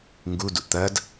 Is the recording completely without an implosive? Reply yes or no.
yes